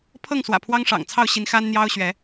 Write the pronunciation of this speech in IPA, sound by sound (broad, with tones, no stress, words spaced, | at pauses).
pʰɤ˥˨ŋswä̰˨˩ pʰwɑ˦ŋʂɑ̰˨˩ŋt͡sʰɑ˥˨ʊ̯ɕi˨˦n xa˦nn̪jɑ˦ʊ̯ɕɥɛ˨˦